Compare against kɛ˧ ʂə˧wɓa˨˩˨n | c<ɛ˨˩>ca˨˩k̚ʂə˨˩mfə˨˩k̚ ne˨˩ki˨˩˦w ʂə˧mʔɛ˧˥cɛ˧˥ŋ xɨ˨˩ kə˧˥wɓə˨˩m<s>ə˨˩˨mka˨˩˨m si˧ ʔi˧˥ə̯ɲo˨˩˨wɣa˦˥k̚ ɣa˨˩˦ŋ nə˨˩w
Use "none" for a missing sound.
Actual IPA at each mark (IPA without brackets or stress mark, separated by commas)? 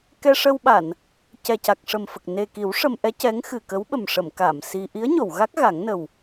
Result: ɛ˨˩, ʂ